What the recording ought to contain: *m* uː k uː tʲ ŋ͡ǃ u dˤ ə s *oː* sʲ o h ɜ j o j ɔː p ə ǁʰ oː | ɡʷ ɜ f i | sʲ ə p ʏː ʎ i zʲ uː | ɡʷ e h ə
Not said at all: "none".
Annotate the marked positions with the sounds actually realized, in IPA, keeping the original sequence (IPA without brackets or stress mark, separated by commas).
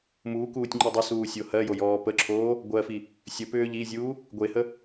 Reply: m, uː